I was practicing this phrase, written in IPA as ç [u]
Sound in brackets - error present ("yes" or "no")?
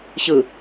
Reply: yes